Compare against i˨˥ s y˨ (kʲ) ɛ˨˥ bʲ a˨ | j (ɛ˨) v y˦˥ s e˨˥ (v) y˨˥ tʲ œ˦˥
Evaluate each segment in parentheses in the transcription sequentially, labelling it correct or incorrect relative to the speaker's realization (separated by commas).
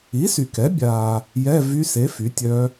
incorrect, incorrect, incorrect